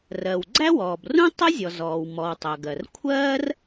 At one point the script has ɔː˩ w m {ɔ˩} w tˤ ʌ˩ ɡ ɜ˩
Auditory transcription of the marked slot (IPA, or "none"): ɔ˩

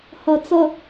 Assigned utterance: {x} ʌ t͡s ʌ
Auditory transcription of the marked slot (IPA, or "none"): h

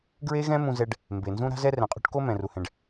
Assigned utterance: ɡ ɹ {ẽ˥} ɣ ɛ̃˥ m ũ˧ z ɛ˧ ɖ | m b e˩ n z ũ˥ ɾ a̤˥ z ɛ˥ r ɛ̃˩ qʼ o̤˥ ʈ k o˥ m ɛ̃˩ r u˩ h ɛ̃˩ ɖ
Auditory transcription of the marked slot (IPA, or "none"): e˥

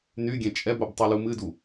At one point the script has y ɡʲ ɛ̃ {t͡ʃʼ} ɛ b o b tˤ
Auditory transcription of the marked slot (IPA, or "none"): t͡ʃʼ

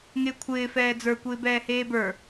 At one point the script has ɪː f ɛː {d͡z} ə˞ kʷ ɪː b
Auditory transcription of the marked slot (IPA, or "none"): d͡z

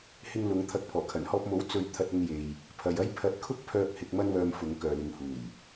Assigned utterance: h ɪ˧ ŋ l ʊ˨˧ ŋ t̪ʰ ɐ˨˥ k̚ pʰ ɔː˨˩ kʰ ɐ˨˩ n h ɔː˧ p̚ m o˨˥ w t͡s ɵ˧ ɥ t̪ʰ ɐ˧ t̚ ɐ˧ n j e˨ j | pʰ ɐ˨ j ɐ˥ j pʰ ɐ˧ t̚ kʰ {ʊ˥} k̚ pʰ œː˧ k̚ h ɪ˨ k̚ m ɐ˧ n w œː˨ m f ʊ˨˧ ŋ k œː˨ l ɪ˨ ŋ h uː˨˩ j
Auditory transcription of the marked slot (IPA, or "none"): ʊ˥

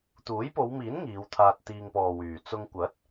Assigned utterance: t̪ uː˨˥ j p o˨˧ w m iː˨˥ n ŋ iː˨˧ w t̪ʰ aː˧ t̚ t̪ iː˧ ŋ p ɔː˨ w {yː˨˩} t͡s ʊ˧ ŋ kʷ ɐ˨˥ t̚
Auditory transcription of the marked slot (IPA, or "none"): yː˨˩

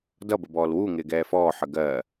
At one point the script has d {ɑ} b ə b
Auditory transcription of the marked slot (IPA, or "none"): ʌ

